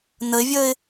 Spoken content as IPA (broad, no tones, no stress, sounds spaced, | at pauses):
n ə ɪ̯ vʲ əː ɪ̯